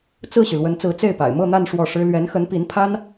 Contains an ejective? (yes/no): no